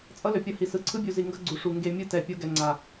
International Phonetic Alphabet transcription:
t͡sʼʌ˦lø˨pʲʌ˦˨hi˨ sɯ˨ǀʰɯ˦bʲu˨zi˨ ŋɡʌ˦ɡ͡ǀu˨ʂu˨ ŋɡe˨ mʲɯ˦tɛ˨ pʲo˦ɡɛ˨ŋ͡ǀa˨

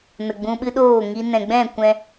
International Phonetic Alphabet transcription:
nə˨ɡ͡bũ˧ɓɨ˦ɗoː˦˨ ŋi˧ nɛ̃˨ɡ͡bɛ̃˦˨kʷɛ̃˧

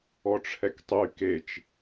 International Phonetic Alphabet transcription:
ɔʈ͡ʂʰɛktˤy ket͡ʃ

